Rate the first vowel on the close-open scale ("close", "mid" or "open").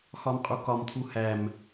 open